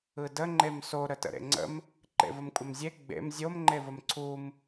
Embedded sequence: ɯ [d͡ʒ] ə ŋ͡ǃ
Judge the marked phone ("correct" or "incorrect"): incorrect